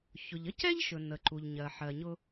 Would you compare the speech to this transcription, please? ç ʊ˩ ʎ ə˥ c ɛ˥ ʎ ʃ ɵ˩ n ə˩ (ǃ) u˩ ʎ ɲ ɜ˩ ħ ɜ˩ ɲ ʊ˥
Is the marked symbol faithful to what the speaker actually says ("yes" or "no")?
yes